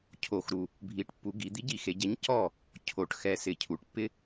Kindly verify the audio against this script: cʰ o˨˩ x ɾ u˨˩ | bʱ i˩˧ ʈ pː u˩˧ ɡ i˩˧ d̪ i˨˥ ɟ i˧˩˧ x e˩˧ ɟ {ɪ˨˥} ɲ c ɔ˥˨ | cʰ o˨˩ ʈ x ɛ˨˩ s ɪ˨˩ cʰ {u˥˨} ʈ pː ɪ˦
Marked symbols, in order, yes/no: no, no

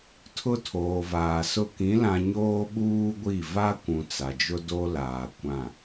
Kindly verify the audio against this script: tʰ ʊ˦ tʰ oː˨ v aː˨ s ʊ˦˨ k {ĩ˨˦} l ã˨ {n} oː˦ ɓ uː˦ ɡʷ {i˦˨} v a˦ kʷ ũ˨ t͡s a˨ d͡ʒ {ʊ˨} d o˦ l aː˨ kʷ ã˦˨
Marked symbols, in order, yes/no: yes, no, yes, no

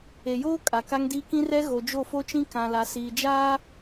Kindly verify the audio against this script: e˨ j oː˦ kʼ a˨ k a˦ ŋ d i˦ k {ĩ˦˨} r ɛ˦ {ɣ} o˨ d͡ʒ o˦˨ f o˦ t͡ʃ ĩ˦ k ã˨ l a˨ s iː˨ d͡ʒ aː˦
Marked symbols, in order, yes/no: no, yes

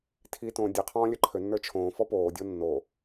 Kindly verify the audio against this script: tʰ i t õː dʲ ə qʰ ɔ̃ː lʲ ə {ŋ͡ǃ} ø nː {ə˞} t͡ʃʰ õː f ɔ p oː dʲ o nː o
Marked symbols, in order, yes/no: no, yes

